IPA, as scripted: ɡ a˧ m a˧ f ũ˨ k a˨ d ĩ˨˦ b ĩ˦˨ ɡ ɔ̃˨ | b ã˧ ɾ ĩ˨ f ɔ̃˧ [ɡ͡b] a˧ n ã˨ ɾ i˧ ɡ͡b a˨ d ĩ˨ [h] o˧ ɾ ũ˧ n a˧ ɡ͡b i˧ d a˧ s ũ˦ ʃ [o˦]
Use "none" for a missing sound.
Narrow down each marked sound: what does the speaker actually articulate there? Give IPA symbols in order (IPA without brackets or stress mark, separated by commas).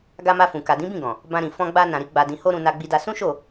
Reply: ɡ͡b, h, o˦˨